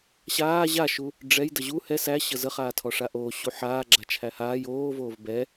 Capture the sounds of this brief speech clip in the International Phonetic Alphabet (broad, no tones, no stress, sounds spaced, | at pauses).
ɕ aː ʑ a ʃ u | ɖ͡ʐ ɛ j d ə ʑ u h ɛ s æ ɕ ə z ə χ aː tʰ ɔ ʂ a ʔ oː ɕ u ħ aː ɡ͡ǁ a t͡ʃʰ æ h aː j oː v oː v b ɛ